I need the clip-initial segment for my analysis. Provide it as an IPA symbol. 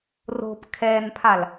r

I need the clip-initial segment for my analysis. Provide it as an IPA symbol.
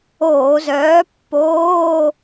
oː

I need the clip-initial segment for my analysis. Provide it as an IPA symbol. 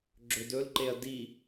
ɡ͡ǁ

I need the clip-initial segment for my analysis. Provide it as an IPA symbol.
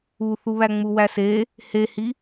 u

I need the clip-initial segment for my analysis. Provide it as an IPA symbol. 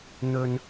n̪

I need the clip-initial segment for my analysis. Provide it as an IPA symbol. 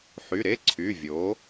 ħ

